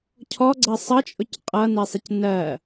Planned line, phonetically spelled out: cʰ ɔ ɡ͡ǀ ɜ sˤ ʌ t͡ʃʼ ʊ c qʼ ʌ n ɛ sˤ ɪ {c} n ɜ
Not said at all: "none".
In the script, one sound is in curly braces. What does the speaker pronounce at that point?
c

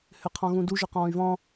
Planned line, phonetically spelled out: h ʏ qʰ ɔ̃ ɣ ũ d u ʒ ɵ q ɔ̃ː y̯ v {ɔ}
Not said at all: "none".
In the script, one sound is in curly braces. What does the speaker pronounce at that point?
ɔ̃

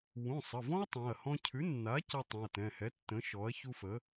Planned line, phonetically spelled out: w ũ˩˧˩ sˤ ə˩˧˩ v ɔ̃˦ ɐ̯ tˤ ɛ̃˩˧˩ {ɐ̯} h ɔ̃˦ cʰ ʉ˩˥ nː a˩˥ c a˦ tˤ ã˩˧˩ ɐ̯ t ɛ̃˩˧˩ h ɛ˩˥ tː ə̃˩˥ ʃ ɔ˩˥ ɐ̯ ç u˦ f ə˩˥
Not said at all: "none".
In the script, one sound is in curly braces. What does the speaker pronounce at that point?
ɐ̯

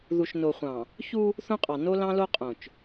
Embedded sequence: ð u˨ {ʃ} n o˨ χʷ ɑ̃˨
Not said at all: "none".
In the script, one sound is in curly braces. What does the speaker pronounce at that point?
ʃ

